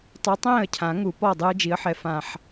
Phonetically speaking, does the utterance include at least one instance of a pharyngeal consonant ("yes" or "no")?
yes